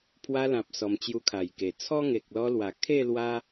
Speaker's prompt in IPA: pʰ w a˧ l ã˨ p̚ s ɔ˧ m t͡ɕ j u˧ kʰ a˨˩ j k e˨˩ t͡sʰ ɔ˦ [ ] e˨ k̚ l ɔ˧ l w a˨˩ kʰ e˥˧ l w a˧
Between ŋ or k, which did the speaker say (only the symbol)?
ŋ